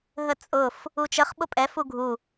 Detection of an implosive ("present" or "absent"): present